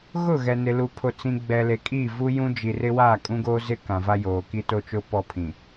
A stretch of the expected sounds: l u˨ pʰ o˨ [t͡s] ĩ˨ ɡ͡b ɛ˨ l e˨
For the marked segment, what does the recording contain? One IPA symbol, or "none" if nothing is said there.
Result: t͡s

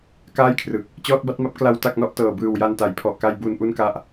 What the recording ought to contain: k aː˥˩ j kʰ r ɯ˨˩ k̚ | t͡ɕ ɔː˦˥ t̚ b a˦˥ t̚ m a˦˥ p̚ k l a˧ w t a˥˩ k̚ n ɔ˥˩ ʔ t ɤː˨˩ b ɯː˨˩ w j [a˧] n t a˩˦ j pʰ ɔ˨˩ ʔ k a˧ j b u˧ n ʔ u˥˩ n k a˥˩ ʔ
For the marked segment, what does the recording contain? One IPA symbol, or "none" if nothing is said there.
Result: a˧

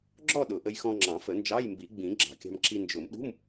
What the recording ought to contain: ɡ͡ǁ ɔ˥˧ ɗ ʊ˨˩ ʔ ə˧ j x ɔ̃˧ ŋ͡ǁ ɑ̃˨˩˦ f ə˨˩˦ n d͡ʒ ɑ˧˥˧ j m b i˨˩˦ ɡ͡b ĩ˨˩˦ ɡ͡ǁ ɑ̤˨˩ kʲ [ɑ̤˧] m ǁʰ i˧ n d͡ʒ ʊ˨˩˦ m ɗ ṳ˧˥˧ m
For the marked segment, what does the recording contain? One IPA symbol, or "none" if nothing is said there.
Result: ɑ̤˧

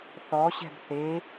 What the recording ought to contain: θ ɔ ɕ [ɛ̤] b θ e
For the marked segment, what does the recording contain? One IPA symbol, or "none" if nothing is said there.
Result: ɛ̤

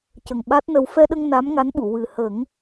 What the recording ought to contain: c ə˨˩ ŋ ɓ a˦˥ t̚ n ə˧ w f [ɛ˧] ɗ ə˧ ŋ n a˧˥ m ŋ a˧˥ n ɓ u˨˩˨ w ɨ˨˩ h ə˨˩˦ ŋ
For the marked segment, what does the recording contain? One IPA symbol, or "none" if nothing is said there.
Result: ɛ˧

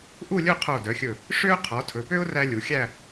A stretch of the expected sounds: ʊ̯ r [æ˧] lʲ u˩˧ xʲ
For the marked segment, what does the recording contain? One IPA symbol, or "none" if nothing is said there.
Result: æ˧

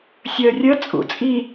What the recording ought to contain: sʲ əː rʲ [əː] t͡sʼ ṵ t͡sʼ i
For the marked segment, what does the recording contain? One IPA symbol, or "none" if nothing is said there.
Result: əː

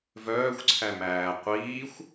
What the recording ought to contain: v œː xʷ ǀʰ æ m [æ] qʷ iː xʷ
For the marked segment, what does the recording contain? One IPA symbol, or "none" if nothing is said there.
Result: æː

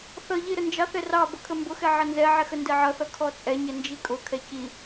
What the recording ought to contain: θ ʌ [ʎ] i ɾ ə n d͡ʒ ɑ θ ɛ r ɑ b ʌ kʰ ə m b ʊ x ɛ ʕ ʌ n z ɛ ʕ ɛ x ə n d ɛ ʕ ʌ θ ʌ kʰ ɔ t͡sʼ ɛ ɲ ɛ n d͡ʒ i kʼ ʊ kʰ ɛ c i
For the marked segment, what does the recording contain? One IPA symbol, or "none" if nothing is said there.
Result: ʎ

